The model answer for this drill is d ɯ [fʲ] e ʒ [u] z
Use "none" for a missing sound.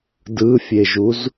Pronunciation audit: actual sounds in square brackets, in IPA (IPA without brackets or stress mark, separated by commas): fʲ, u